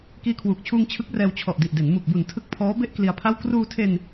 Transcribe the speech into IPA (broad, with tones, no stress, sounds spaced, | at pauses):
k iː˧ kʰ w uː˨˩ k̚ t͡ɕʰ uː˧ ŋ t͡ɕʰ ɯ˦˥ k̚ r ɛː˧ w t͡ɕʰ ɔ˨˩ ʔ d i˨˩ ʔ d e˩˦ n m u˨˩ k̚ b u˨˩ n tʰ ɯ˦˥ k̚ pʰ ɔː˦˥ b e˥˩ ʔ k l i˧ a̯ pʰ a˥˩ w k r uː˧ tʰ e˧ n